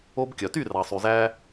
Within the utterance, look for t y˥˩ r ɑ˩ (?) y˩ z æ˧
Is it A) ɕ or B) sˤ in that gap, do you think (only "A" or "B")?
B